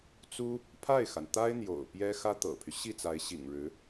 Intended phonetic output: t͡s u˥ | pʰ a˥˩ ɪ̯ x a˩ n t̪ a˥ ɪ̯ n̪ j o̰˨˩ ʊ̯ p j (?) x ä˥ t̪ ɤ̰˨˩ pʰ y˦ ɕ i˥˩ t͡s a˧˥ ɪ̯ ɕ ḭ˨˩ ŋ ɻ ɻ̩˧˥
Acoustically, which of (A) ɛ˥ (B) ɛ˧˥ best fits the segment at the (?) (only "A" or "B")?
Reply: A